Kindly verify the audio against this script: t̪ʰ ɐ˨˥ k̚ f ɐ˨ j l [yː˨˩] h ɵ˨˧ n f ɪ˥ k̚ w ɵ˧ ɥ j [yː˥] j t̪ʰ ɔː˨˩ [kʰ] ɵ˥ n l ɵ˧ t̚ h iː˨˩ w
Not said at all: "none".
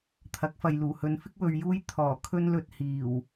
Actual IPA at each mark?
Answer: uː˨˩, uː˥, kʰ

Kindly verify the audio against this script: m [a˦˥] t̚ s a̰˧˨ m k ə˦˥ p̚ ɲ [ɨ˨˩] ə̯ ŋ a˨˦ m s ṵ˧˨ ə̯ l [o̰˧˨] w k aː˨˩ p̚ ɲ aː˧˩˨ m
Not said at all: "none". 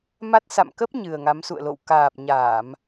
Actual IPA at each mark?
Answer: a˦˥, ɨ˨˩, o̰˧˨

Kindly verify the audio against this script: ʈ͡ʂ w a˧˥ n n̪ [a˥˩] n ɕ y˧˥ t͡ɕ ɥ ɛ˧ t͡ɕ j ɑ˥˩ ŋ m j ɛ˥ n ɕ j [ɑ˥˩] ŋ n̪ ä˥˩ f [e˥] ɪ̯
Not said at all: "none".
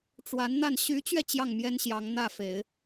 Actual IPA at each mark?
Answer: a˥˩, ɑ˧˥, e˨˩˦

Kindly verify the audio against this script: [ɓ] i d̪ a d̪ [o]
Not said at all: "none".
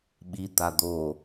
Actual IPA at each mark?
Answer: ɓ, o

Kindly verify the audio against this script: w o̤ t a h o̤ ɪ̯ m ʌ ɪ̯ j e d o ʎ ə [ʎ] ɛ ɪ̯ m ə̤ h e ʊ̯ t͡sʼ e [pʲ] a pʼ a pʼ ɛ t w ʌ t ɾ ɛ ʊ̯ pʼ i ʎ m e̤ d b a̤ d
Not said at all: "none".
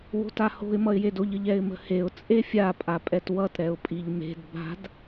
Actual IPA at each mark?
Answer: ʎ, fʲ

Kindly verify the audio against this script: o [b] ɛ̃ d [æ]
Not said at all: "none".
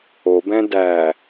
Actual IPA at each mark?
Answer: b, æ

